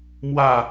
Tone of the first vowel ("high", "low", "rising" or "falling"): falling